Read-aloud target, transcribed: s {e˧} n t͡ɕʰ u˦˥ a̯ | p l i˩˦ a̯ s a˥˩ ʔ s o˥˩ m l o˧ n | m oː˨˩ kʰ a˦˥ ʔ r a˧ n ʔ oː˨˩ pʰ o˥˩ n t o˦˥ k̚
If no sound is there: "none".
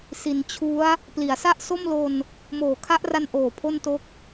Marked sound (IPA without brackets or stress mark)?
i˧